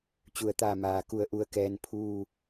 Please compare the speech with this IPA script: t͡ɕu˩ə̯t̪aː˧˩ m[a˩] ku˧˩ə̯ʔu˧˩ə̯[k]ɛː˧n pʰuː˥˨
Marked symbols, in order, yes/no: no, yes

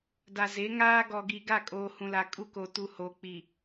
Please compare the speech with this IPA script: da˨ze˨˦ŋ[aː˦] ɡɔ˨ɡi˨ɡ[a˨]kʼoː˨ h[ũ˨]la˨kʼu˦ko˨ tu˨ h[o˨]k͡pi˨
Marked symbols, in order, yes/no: yes, no, yes, yes

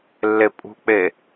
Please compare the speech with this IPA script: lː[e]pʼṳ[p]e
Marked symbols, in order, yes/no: yes, no

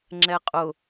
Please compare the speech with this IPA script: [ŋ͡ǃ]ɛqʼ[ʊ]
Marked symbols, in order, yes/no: no, yes

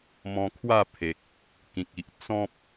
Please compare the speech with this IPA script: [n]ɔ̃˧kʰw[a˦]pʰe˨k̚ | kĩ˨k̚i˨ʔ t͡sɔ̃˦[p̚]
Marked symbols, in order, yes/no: no, no, yes

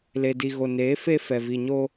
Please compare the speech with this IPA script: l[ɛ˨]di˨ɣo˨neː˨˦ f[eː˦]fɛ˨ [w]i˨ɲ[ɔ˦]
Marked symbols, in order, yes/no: no, no, no, no

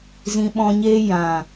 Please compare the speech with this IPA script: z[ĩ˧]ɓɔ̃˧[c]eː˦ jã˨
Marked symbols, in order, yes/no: yes, no

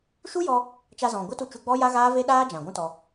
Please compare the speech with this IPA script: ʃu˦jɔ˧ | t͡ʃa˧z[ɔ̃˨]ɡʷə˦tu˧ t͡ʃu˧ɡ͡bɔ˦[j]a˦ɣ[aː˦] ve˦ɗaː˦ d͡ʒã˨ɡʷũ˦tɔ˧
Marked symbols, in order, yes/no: yes, yes, yes

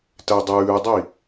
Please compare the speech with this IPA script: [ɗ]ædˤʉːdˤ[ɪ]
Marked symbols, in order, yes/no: no, no

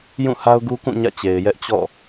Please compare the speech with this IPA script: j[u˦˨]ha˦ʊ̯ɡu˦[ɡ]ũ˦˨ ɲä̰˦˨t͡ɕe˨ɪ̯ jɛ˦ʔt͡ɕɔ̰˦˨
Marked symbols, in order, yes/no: no, no

